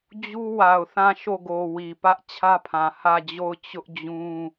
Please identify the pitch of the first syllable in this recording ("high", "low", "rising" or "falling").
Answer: high